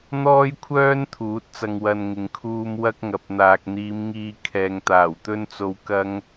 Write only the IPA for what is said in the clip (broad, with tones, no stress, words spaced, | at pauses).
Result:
n̪ɔː˥jkʷʰœː˥n t̪ʰuː˨˥t̚t͡sɐ˧ŋ wɐ˧nŋɪ˨ŋ kʰuː˧mwɐ˥k̚ ŋɐ˨p̚n̪aː˨k̚n̪iː˨˧mŋiː˧ kʰɛː˨ŋt̪aː˨˩wt̪ɵ˥nt͡so˧w kɐ˥ŋ